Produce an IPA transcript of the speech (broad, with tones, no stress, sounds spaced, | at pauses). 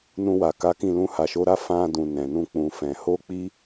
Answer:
n ũ˧ w a˨ k a˨˦ k ĩ˦˨ l ũ˧ h a˨ ʃ o˨˦ ɾ a˦ f ã˧ d ũ˨ n ɛ̃˨ n ũ˧ k͡p ũ˨ f ɛ̃˨ h o˧ k͡p i˧